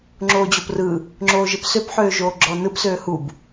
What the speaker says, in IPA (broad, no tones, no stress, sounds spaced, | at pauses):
ŋ͡ǁ oː d͡ʑ o p r ɯ | ŋ͡ǁ oː ʒ ɪ p s ø p ħ øː ʒ oː ɡ͡ǁ ɔː n ɯ p s øː h u b